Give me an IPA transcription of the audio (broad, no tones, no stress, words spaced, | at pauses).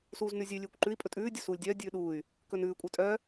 suːznʉzʲʉ lʲʉːkʷǃʉi̯ pʼɵtʼʉː dʲɵsuːlʲdʲœː dʲʉːɗuːy̯ | kɵnʉː kʷʼœtʼœ